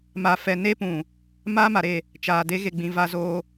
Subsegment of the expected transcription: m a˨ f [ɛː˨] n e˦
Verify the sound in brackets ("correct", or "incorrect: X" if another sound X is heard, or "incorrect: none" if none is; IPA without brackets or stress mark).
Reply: incorrect: ɛ˨